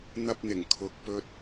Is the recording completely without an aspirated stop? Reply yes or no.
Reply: no